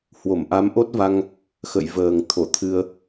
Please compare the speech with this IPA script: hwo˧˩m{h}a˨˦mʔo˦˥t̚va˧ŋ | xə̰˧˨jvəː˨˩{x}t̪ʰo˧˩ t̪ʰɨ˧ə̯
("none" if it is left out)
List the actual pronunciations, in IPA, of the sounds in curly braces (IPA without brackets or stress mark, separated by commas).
ʔ, ŋ